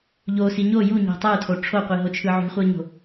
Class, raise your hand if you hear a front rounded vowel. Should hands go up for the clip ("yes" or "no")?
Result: no